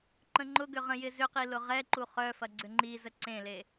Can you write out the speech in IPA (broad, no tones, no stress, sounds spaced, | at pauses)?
ǃ ə̃ ŋ͡ǃ ʊ ɡ ʏ ʁ ə̃ j ɪ z ʏ q i l ʊ ʁ ɛ ǃ u χ œ f ɐ ɡ͡ǀ ʏ ŋ͡ǃ i z ə ǀ ẽ l e